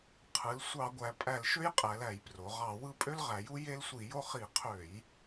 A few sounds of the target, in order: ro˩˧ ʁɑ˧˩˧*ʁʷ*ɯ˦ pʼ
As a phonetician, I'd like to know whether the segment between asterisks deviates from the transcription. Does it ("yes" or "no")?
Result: yes